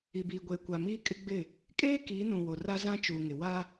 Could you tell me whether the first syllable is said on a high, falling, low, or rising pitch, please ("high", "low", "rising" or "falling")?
low